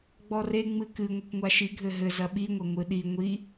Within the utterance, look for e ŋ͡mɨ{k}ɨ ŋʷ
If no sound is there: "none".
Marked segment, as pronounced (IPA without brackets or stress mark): k